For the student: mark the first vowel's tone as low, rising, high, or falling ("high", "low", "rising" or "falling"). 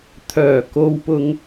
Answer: low